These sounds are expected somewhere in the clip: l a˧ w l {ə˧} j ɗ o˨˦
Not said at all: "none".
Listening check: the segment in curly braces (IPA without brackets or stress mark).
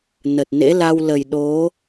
ə˨˩